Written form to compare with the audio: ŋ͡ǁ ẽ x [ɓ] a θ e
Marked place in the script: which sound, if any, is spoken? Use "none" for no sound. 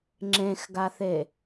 ɡ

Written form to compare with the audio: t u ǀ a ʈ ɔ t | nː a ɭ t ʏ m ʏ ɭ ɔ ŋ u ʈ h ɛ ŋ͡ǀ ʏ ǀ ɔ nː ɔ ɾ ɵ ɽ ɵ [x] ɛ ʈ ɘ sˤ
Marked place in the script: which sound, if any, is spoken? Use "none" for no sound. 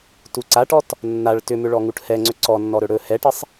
h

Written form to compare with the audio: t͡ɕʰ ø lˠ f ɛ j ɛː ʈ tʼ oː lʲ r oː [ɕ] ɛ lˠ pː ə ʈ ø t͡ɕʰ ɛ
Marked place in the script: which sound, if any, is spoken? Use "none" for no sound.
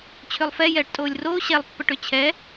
ɕ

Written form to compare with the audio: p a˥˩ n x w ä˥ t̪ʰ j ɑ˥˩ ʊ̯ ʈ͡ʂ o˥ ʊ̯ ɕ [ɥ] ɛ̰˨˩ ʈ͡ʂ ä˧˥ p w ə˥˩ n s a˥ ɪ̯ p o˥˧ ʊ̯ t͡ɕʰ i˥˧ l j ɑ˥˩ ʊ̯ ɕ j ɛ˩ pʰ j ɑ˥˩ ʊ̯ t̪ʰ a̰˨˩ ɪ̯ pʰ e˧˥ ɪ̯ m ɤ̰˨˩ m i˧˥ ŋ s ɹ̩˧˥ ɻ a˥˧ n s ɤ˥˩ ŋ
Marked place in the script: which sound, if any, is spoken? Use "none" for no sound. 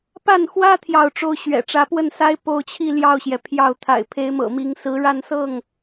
ɥ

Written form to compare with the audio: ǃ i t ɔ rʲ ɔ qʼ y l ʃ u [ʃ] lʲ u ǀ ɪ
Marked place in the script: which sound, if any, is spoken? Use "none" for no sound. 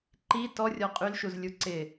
z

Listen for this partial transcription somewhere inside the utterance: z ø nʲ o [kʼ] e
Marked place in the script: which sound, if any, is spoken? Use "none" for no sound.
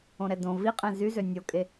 kʼ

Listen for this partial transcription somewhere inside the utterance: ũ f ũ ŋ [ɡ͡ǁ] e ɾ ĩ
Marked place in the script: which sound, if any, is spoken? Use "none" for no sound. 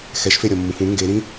ɡ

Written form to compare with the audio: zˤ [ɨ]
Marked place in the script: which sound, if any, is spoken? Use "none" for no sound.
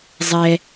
ɛ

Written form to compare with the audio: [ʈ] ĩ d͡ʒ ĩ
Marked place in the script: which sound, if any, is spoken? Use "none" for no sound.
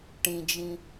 ʈ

